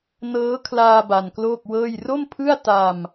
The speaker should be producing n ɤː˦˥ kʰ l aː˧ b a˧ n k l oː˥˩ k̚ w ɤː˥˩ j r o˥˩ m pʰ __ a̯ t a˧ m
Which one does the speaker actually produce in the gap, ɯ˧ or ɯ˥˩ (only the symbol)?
ɯ˥˩